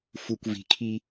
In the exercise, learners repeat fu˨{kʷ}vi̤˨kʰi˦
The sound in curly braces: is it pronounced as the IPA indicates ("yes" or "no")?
yes